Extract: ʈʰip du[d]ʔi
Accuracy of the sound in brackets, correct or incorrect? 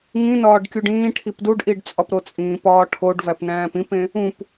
incorrect